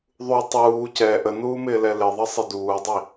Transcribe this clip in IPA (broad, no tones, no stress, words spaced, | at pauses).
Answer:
ðˤu tˤuː cɛ ʔənuːmɪːlɛ lɪðˤʌ sˤɪduːdˤi